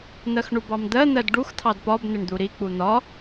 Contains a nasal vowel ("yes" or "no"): no